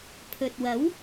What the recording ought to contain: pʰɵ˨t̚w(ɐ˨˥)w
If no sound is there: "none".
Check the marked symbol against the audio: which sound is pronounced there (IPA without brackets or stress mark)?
ɐ˨˥